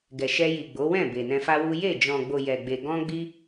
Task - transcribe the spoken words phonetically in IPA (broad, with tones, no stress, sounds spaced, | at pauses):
ɡ ɛ˨ ʃ ɛ˧ j i˨ ɡ͡b o˨˦ w ɛ̃˦˨ b e˨ n ɛ̃˧ f a˦ w u˦ j e˦˨ d͡ʒ ɔ̃˨ ɡ͡b o˨ j ɛ˨ ɡ͡b e˨ ɡ ɔ̃˧ ɡ͡b i˧